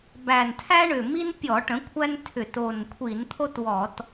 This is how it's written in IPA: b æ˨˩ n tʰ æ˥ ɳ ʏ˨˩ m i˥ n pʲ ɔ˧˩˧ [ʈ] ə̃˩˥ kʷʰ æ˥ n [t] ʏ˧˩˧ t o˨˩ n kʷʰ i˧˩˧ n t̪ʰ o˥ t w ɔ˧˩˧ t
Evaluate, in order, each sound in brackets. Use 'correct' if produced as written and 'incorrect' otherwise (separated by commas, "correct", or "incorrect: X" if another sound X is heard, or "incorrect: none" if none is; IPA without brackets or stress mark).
correct, incorrect: tʰ